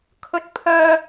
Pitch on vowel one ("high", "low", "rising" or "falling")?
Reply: high